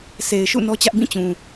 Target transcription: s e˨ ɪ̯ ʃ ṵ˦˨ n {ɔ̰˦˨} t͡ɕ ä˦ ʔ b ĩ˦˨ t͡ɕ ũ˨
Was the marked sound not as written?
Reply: yes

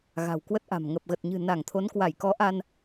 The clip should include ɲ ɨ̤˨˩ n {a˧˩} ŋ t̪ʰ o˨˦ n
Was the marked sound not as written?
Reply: no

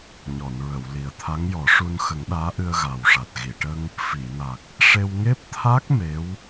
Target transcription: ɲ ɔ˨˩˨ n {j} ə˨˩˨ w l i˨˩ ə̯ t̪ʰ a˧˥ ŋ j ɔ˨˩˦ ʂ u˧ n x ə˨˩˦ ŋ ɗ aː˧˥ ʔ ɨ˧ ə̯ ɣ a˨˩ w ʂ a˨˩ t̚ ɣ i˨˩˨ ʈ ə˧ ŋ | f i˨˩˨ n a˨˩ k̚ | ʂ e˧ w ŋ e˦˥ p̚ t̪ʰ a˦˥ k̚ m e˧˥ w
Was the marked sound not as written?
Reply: yes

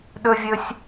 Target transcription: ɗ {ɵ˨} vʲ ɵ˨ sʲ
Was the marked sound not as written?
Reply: no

